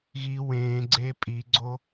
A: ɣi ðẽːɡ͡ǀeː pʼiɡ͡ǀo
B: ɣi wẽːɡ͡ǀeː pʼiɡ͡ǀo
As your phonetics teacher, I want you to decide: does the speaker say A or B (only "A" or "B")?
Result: B